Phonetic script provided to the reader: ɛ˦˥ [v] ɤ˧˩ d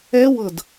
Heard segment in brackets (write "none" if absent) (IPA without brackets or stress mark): w